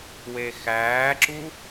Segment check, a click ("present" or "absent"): present